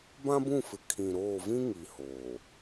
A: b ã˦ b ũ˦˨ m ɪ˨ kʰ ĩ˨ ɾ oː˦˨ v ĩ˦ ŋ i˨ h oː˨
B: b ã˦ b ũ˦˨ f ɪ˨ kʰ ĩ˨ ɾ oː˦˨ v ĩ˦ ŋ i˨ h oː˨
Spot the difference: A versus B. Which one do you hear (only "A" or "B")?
B